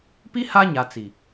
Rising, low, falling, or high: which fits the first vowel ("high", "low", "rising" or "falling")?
high